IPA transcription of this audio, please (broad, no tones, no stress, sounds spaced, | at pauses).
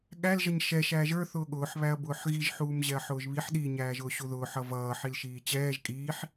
ɠ æ l ʒ ʌ ɲ ʃ ɛ ʃ æː ʒ ə˞ θ ʊː ɠ ʊː ħ β æ ɐ̯ b ʊː ħ ɣ i ʒ ħ uː m ʑ ɛ ɐ̯ ħ ʊː ʒ β i ħ ɗ i ɲ æː ʒ ʊː ɕ u ð ʊː ħ ʌ v ʌː ħ i l ʃ iː t͡ɕ ɛː ʒ kʼ iː ħ